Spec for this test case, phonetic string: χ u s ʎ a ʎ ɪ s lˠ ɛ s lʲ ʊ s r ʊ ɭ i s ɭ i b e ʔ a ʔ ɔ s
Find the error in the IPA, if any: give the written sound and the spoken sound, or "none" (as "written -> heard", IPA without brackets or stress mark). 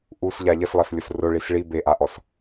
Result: χ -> ʔ